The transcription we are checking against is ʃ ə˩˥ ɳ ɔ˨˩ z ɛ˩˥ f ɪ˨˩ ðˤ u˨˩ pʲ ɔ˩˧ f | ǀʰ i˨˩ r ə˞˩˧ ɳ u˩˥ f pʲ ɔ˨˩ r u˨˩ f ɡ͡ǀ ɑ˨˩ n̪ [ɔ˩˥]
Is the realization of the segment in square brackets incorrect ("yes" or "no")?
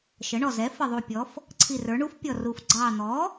no